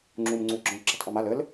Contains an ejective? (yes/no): no